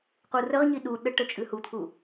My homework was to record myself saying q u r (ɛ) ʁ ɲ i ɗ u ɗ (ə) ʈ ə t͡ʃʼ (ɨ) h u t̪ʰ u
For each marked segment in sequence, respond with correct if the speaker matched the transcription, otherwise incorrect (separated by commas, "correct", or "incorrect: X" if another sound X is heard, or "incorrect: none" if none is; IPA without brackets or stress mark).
incorrect: ə, correct, correct